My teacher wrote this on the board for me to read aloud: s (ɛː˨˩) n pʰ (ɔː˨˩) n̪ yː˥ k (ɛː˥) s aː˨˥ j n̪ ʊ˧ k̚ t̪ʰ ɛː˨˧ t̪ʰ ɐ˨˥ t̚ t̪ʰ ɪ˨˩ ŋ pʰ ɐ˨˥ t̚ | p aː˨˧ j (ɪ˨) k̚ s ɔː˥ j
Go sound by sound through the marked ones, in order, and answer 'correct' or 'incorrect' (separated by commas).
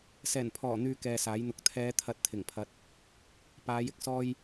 correct, correct, incorrect, correct